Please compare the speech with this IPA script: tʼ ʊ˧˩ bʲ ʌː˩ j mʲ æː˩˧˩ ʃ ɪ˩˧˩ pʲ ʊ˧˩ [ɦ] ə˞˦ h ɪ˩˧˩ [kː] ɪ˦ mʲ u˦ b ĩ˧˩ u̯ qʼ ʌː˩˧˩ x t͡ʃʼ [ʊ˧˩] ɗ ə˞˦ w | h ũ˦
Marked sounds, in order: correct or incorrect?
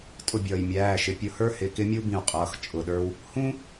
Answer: incorrect: h, incorrect: k, correct

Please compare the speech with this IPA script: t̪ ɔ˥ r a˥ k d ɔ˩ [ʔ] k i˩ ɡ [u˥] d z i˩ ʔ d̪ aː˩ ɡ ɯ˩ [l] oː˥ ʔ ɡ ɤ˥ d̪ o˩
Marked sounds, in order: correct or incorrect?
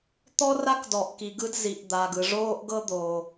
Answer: correct, incorrect: ɯ˥, incorrect: ʐ

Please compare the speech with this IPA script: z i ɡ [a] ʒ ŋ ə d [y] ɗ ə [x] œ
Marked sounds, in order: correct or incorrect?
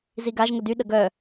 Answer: correct, correct, incorrect: ɡ

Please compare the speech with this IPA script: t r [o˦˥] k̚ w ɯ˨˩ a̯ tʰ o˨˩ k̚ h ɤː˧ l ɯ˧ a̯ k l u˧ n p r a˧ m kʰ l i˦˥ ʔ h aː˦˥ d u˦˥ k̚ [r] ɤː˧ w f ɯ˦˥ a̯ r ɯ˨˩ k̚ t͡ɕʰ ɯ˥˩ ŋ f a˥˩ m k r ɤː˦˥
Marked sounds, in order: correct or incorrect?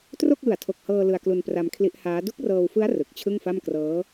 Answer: incorrect: o˥˩, correct

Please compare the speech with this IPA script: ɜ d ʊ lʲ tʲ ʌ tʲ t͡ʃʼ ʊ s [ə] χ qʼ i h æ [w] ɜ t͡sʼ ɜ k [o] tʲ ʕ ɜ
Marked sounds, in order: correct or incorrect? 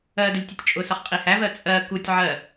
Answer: incorrect: ʌ, incorrect: v, incorrect: u

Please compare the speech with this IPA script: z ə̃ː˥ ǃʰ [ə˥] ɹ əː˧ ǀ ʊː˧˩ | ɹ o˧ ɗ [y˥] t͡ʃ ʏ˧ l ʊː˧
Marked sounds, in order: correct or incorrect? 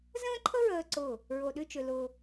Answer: correct, incorrect: y˥˧

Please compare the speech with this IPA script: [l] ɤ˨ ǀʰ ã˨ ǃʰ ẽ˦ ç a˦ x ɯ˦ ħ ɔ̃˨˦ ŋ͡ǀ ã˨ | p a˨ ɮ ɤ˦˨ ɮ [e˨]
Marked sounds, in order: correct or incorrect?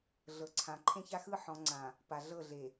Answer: incorrect: ɮ, correct

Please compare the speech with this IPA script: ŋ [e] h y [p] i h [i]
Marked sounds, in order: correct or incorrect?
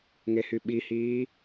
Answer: correct, incorrect: ɓ, incorrect: iː

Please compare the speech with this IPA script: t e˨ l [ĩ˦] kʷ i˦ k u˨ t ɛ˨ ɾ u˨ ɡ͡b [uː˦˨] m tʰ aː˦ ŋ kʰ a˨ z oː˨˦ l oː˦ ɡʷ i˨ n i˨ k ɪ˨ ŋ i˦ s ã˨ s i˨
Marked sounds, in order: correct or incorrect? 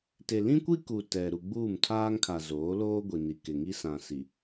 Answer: correct, correct

